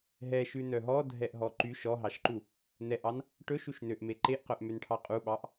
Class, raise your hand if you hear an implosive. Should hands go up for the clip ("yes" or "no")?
yes